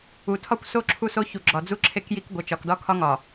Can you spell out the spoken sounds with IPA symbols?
u˨ tʰ ɒ˦ kʷ s o˦ ǁʰ u˦ s o˦ ç u˨ ɡ͡ǁ ɒ˨ d͡z u˦ ǁʰ e˦ k j i˦ k ɡʷ e˨ t͡ʃ ɒ˨ k d ɒ˦ kʰ ɒ˦ ŋ ɒ˨

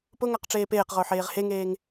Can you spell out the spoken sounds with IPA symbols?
p ʊ ŋ a q ʈ͡ʂ eː p eː q ʁ ʊː ħ eː ʁ h e ŋ eː ŋ

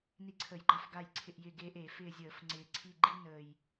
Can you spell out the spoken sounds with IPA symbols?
n i˦˨ ǀʰ ə˧˩˧ j ɡ͡ǃ a˦ f ɡ a˦˨ j ǀʰ ɪ˦˨ ʔ j ɪ˦˨ ɡ eː˦ ʔ e˧˩˧ f ɪː˦˨ zʲ əː˧˩˧ f ŋ͡ǀ ɪː˨˩ ǀʰ i˦˨ ɡ͡ǃ i˦ n əː˨˩ j

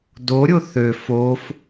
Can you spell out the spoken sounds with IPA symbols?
d o ɾʲ o θ ø f o f

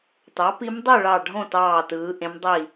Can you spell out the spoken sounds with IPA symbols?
t ɑ˩˥ p i˧˥ m dˤ y˥˨ ɭ ɑ˧˩ ɖʱ õ˥˨ t ɑː˧˩ t ɯː˩˧ ʔ ẽ˧˥ m dˤ i˥˨

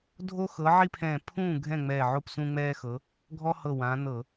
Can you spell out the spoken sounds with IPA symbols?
dʱ o˦ x ɤ˨˦ ʕ i˦ pʰ ɛ̃˧˩ pʰ ũː˥˩ ɡʱ ɛ̃˥˩ ŋ͡m ɛː˧˩ ʕ o˥˩ p s ũ˦ ŋ͡m ɛː˦ x ɤ˨˦ | ɡʱ ɔ˦ h ɤ˧˩ w ã˨˦ n ɤ˧˩˧

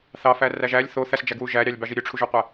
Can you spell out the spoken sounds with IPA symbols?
θ ɑ f æ r æ ʒ æ lʲ θ o θ æ s d͡ʒ æ ɡ w u ʒ æ ɾʲ ɑ lʲ b ɑ ʒ i ɾʲ ø ʈ͡ʂʰ u ʒ o qʷ æ

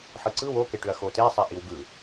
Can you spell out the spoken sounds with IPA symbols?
ħ ɯ ǀ ɯ w o k e ʈ ʏ ɐ̯ x o t e sˤ ɛ ʔ i w ɡ ɯ

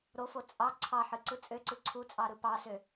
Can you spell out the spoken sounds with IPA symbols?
ɾ o f o t͡sʼ ɑ ǀʰ ɑ ħ ɯ ǀ ɯ t͡sʼ ø ǀ ɯ ǀʰ u t͡sʼ ɑ ɾ ɯ p ɑ s ø

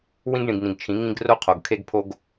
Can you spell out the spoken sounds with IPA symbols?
w ĩ˦ ɡ ɳ ĩ˨ ɡ n ĩ˨ ɡ t͡ʃʰ ĩ˨˦ ŋ ĩ˦ ɡ r o˦ qʰ o˨ ɡ kʰ e˦ ɡ pʰ o˦ ɡ

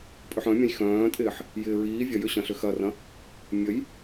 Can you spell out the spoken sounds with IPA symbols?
pʼ ʏ ħ œ̃ mʲ ɐ̃ j x œ̃ː tʼ ɪː ħ | j ɪː ɹ iː vʲ ɐ j ʏ ɕ ɐ̃ ɬ ʏ x ɐ r ɐ̃ | mʲ ə j

